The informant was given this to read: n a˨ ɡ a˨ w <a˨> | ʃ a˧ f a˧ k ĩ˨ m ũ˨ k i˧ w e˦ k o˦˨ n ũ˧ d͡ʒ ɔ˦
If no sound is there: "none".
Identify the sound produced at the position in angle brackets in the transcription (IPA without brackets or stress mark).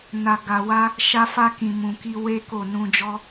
a˧